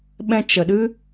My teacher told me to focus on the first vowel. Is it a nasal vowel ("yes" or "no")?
yes